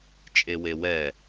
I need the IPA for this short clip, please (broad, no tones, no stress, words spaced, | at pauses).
t͡ʃʼewewɛ